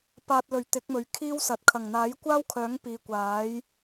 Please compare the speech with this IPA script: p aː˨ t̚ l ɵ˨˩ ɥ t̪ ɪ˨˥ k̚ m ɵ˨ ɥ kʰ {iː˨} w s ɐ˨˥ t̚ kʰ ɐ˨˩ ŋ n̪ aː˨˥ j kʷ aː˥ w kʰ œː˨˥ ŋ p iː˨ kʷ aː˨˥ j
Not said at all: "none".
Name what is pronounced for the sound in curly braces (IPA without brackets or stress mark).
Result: iː˥